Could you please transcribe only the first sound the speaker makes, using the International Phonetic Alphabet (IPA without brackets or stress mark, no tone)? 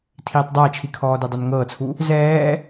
tʰ